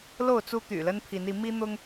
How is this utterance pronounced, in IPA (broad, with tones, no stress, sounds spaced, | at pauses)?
l o˥˨ ʊ̯ t͡s u˦ t̪ y̰˨˩ l ə˦ n pʰ i˨˦ n i˨˦ m i˦ n̪ ʊ˦ ŋ